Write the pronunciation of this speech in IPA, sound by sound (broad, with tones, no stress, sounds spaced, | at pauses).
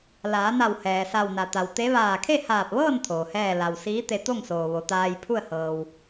l aː˩˧ n a˧˩ w h ɛː˩ s a˧˩ w n a˩ t̪ a˩ w t̪ e˧˥ ʋ aː˧˩ kʰ e˥˨ h aː˧˩ p̚ ʋ ɤː˥˨ n t̪ʰ oː˩ h ɛː˥˨ l a˩ w s iː˧˥ t̪ e˧ t̪ o˥˨ ŋ s oː˩ ʋ o˩˧ t̪ aː˧ j pʰ u˥˨ ə̯ h ɤː˩ w